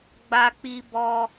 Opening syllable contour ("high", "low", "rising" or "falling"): high